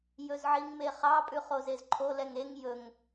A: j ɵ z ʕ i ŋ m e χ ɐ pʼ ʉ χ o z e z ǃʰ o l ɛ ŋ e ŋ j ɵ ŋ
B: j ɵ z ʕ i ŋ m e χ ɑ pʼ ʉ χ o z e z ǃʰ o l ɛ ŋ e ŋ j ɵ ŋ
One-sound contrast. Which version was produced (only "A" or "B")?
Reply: B